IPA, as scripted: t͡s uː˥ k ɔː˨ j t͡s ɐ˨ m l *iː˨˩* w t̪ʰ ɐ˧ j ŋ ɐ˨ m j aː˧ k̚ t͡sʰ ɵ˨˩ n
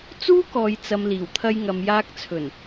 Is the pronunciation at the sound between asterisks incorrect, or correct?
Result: correct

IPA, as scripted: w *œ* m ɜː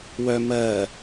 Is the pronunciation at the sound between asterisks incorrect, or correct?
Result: correct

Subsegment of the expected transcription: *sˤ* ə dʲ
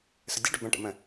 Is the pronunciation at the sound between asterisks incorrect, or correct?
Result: incorrect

